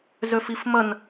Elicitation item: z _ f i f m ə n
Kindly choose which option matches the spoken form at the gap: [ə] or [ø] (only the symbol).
ø